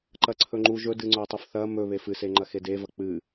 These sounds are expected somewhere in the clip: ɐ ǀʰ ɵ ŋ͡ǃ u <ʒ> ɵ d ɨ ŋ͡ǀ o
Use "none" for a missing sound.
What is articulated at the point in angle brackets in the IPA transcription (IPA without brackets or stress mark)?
ʒ